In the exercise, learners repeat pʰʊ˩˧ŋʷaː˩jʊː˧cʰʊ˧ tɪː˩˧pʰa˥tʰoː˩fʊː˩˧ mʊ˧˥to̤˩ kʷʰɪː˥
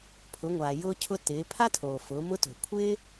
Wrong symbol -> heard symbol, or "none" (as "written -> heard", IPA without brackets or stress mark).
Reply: none